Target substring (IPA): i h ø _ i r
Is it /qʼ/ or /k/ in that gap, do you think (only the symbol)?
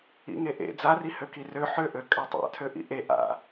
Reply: k